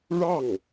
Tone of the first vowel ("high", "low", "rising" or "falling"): falling